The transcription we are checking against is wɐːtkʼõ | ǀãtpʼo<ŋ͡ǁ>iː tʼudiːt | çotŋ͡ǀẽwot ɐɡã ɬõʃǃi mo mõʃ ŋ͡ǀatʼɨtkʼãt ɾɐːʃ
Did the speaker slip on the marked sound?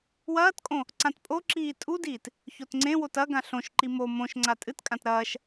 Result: yes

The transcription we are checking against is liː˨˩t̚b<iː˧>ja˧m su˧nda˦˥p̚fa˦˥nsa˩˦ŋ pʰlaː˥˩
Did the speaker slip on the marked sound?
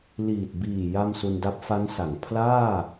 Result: yes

